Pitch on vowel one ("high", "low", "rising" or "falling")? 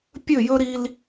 falling